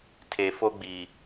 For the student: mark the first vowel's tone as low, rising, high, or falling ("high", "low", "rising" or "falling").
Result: low